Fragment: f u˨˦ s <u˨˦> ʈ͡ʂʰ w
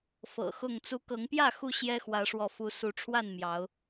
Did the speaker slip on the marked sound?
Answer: no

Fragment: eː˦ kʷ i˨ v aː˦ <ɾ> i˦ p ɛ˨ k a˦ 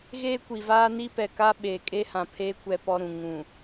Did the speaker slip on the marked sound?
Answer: yes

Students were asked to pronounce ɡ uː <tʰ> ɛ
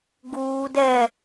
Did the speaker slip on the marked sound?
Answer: yes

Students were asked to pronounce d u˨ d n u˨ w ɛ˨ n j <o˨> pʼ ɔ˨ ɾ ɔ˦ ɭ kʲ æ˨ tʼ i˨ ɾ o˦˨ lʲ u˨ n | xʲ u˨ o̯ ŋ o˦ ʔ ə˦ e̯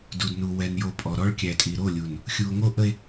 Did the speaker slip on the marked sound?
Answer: no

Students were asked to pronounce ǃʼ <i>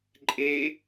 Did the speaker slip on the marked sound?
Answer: yes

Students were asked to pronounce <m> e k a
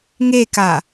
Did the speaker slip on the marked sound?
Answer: yes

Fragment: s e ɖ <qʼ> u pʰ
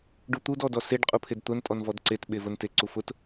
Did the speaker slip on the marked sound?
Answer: no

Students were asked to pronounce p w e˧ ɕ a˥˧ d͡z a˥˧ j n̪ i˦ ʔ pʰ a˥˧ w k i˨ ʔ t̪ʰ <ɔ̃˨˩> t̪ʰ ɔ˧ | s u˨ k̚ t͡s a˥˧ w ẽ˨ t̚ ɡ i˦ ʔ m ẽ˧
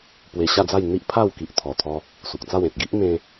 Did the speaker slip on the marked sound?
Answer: yes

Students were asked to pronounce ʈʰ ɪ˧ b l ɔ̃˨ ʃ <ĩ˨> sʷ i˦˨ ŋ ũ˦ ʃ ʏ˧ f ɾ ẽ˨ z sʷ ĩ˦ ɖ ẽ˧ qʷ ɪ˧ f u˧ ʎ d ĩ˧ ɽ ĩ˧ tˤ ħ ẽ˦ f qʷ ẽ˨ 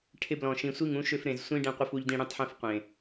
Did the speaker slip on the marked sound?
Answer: no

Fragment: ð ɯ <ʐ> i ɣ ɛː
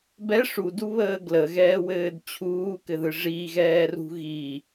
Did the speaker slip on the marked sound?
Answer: no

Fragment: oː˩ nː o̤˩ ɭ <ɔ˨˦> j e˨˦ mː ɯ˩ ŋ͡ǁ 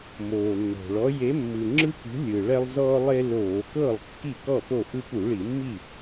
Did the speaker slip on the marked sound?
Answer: no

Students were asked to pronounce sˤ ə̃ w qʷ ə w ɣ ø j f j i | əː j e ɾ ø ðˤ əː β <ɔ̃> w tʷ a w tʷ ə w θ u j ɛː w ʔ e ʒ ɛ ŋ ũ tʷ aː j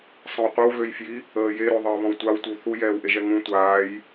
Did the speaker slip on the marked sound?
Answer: no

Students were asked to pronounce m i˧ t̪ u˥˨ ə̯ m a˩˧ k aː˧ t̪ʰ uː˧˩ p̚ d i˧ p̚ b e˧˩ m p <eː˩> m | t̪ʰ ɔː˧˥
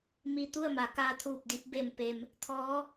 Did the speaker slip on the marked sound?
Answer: yes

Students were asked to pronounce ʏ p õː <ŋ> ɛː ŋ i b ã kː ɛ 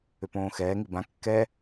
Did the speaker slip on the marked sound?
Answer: yes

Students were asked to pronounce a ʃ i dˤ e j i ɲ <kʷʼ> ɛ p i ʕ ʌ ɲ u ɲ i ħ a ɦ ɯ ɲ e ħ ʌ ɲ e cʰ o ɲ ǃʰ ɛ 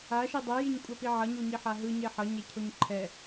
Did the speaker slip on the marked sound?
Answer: no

